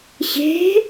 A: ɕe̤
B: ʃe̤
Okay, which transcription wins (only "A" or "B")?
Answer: A